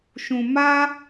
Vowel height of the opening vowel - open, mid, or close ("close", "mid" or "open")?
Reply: close